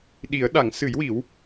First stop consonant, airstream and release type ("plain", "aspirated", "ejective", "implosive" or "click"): implosive